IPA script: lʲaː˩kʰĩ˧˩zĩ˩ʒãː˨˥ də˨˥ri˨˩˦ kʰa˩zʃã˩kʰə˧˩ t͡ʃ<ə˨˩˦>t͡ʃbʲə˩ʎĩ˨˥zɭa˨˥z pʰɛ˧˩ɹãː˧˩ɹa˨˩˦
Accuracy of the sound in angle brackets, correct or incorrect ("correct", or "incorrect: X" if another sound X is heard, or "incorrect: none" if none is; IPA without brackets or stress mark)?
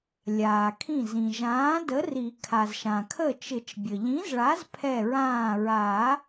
incorrect: ɪ˨˩˦